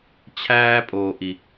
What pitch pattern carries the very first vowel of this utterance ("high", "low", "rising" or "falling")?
high